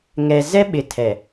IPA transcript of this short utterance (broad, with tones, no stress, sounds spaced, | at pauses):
ŋ ɛ˨ z ɛ˦ ɓ ɪ˨ tʰ ɛ˨